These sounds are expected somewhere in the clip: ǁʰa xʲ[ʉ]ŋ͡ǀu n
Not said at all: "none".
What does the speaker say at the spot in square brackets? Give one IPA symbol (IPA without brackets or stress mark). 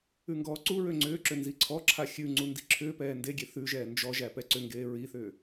ʉ